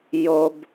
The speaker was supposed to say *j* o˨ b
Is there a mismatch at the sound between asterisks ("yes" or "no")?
no